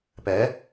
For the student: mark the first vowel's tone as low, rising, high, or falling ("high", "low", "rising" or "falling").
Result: rising